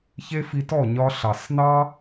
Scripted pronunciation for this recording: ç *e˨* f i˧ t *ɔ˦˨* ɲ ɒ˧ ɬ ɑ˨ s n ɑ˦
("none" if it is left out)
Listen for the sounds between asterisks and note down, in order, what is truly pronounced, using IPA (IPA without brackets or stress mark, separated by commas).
e˦, ɔ˦˨